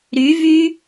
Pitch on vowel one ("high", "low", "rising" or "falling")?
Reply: rising